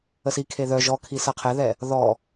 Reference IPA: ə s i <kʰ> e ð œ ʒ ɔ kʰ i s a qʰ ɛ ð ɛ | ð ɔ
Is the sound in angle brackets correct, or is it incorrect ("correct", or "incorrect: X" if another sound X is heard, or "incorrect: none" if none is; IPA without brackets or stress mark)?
correct